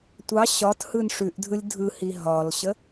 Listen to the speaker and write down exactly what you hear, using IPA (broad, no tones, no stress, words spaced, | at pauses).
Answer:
tʷɑ ɕɒthɯn ʂʉʔdʱɯlʲ dʱɯhi ɦɒlɕə